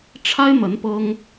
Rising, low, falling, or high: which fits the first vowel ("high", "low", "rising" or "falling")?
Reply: high